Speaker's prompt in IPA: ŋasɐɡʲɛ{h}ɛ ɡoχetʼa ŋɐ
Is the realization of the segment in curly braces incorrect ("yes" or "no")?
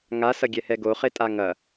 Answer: no